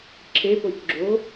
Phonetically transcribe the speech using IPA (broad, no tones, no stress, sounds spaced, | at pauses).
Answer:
ǁʰ e p o c ɡ͡ǁ o